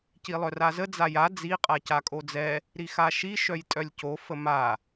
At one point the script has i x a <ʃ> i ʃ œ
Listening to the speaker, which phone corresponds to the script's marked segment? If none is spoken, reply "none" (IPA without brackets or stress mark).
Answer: ʃ